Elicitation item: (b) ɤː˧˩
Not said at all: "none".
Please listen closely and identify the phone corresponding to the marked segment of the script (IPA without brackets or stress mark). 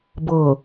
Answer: b